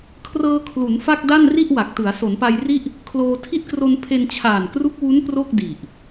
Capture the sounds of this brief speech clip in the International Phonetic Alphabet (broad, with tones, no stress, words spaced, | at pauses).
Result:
kʰrɤː˧kʰlu˩˦n fa˥˩k̚da˥˩n ri˥˩ʔwa˨˩k̚tɯ˩˦a̯ so˩˦npa˧jri˥˩ʔ | kʰloː˧ tʰi˦˥t̚kro˧n pʰe˧nt͡ɕʰaː˨˩nkru˦˥k̚wu˦˥n pro˥˩k̚ di˨˩ʔ